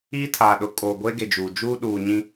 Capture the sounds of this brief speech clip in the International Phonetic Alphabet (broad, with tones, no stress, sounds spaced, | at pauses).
iː˦ tʰ aː˨ ɗ ʊ˨ kʼ oː˨ ɡʷ e˦ ɡ e˨ d͡ʒ uː˨ d͡ʒ uː˦ ɗ uː˨ ɲ ĩ˦